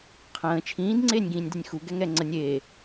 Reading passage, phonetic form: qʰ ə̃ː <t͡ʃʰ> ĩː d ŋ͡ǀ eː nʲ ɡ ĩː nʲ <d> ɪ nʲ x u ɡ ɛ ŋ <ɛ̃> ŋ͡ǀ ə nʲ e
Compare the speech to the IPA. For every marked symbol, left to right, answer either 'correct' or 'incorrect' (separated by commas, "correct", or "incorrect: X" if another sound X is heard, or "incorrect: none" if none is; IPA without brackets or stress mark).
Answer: correct, correct, incorrect: ɛ